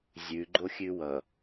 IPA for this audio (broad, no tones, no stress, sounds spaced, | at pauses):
zʲ ʉ ɡ͡ǃ o xʲ ʉ w ʌ